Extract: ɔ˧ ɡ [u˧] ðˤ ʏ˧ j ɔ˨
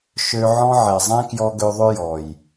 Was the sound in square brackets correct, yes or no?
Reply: no